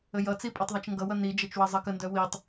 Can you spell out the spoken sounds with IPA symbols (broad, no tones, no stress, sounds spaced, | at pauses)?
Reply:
ə j ʌ t͡s i pʼ œ tˤ ðˤ ʌ t͡ʃ ŋ ɡ ʌ w ʌ n i d͡ʒ ʌ t͡ʃ w ʌ zˤ ʌ k ə n d œ w i tˤ